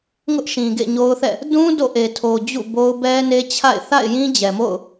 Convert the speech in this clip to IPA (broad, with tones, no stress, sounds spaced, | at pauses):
ŋ ʊ˦ ʔ ʃ ĩ˨ ɡ ḛ˦˨ ɲ o˦ ʊ̯ θ ɛ̰˦˨ | d ũ˦ d o̰˦˨ ʔ e˨ tʰ o˨ d͡ʑ ṵ˦˨ b o˦ ʊ̯ b ɛ˦ n e˦ t͡ɕʰ a̰˦˨ ɪ̯ θ a̰˦˨ ɪ̯ j ĩ˦ d͡ʑ ɛ˨ m o̰˦˨ ʊ̯